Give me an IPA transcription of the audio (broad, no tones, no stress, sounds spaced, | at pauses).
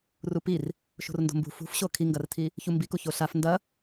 r u p i r | ʃ o̤ r n d o̤ m b ṳ f ṳ f ɕ o kʰ i ŋ ɡ ɐ r tʰ i | ç u m b i k u ç o ɬ a f n d ɐ